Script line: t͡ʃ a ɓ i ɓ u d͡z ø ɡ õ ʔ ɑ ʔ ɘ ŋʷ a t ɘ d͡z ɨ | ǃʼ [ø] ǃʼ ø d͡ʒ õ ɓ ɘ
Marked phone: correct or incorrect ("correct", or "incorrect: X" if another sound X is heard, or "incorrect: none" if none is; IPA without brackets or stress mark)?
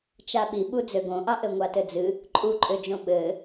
incorrect: u